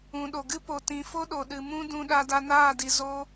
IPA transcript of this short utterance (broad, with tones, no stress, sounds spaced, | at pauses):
ũ˨ ɗ o˨ ɡ ɨ˦ p o˨ t ĩ˨ f o˦ ɗ o˨ ɗ ɨ˨ m ũ˦ d ũ˧ ɗ a˧ d a˧ n aː˦˨ d i˨ z o˦